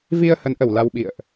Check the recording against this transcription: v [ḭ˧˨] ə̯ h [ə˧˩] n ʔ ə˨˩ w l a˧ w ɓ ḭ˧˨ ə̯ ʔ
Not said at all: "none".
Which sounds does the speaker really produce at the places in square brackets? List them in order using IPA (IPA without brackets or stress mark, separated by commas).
i˧, ə˨˦